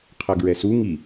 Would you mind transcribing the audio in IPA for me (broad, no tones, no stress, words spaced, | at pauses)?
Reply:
qʰʌɡɹɛsu ŋi